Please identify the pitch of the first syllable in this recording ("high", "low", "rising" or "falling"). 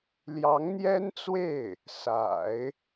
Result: rising